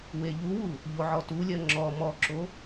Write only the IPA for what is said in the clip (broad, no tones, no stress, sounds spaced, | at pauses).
w e ʎ u w u | ʎ o ʕ ɔ t u lʲ ɜ ŋ͡ǁ ɔ m ɔ ǁ o